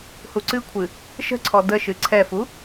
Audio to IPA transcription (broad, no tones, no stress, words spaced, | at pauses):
huǀɨkʷʰɨ | ʃə̤ǀʰɔ dəʃɨ ǀʰɛfu